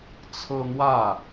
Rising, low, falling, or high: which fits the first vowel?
high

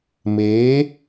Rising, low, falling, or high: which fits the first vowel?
rising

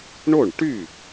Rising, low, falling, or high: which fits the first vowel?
falling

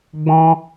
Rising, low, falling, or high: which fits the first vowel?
high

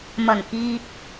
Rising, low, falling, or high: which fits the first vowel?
low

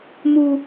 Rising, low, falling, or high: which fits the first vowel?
high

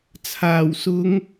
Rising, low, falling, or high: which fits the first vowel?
low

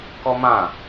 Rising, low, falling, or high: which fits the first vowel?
high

